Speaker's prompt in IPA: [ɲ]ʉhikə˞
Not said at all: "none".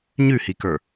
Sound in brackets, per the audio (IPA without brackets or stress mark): ɲ